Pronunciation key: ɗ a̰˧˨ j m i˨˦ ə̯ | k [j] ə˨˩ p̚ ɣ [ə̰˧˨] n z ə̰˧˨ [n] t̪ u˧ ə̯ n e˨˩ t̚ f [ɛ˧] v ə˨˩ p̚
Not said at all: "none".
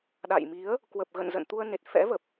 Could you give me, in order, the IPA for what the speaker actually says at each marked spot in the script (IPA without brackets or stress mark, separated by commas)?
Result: w, ə̰˧˨, n, ɛ̰˧˥